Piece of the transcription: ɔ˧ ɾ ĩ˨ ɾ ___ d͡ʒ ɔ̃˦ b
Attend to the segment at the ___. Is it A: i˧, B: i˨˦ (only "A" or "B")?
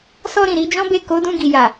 B